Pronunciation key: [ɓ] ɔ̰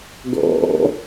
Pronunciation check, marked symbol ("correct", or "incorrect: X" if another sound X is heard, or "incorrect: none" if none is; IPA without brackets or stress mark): incorrect: ɡ